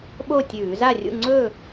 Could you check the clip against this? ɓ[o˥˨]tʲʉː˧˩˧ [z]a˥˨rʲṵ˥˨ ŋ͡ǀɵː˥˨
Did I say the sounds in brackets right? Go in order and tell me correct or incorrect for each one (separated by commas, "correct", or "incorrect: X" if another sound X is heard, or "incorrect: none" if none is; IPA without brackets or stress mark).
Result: correct, correct